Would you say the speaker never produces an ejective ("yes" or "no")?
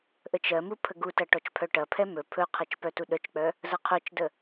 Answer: yes